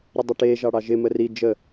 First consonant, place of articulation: alveolar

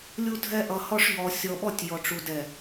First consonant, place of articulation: alveolar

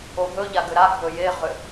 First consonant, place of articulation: glottal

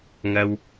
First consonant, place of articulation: velar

